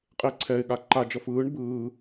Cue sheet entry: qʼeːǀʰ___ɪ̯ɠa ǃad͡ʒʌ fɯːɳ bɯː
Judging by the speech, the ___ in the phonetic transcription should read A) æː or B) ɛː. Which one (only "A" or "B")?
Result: B